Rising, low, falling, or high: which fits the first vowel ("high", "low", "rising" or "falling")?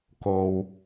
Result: low